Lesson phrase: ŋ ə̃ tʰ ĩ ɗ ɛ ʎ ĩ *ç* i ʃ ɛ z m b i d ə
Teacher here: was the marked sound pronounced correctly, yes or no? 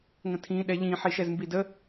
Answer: no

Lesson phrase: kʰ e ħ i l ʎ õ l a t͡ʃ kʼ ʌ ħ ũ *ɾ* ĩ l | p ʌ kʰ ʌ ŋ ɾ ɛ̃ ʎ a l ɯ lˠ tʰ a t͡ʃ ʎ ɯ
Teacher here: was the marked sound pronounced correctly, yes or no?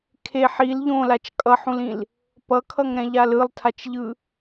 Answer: no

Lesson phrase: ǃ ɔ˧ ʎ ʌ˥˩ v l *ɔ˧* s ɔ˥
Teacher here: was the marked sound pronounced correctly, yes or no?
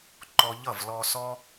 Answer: yes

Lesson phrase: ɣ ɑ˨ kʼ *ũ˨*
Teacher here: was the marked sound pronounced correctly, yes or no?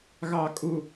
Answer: no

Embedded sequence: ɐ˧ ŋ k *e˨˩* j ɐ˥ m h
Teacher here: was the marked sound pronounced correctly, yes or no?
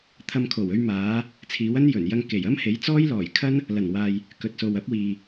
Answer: yes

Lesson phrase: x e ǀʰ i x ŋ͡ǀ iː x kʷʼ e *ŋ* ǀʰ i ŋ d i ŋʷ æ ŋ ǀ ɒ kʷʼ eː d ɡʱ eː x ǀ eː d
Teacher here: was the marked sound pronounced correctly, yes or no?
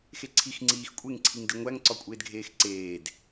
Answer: yes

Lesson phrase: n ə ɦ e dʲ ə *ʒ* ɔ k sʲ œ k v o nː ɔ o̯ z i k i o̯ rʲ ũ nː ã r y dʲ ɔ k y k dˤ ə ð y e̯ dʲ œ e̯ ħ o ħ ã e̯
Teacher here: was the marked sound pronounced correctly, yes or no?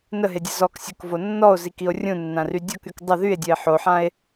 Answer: no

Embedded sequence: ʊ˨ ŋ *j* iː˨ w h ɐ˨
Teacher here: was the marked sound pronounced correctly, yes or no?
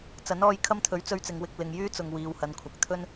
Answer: no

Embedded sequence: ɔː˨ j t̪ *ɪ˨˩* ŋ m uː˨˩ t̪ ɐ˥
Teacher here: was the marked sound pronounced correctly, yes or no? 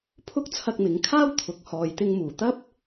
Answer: no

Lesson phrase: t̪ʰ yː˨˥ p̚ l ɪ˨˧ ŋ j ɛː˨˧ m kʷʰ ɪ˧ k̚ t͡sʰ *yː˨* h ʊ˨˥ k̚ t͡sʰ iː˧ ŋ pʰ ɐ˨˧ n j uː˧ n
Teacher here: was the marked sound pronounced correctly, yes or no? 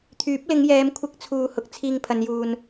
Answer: no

